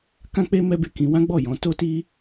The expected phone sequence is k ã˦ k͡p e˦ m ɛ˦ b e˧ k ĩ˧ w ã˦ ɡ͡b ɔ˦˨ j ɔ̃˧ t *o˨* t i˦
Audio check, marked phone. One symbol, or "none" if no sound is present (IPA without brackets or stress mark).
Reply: o˦